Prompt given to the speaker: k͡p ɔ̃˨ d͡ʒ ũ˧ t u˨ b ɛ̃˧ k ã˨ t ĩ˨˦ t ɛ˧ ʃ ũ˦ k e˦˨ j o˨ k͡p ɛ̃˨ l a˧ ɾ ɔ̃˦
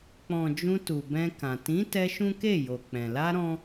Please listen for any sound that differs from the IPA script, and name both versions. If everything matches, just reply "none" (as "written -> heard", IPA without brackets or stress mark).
none